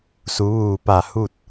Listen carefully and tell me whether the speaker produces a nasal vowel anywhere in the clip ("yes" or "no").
no